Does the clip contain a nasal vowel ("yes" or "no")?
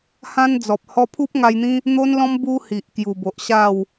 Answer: yes